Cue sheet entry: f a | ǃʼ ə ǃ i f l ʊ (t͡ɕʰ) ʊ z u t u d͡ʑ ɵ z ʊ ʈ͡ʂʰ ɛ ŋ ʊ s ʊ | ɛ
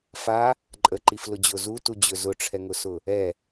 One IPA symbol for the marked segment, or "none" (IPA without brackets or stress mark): d͡ʑ